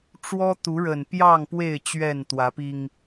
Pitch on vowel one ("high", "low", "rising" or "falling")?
high